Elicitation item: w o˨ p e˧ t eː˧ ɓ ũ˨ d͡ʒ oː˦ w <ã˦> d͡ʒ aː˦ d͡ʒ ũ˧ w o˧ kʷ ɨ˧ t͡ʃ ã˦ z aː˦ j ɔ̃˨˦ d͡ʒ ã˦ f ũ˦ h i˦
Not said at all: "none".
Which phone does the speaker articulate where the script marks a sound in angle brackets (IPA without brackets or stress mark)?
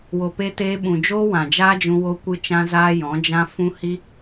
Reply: ã˨